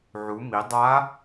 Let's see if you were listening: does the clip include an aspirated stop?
no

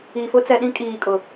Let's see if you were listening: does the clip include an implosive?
yes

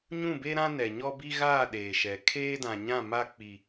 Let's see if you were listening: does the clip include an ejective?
no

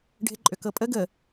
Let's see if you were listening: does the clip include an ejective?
yes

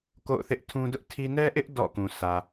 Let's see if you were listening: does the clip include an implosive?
no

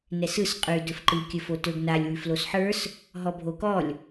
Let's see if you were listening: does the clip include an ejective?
yes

